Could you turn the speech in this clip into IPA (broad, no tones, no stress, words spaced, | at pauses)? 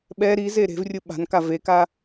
ɓɛ ɾize ɾe̤vrʲɯ ɓa̤nka veka